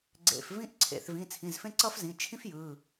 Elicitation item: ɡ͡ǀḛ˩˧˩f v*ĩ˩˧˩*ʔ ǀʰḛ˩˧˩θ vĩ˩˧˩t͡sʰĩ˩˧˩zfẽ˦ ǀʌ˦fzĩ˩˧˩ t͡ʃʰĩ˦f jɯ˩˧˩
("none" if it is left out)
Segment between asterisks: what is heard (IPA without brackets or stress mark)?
ĩ˦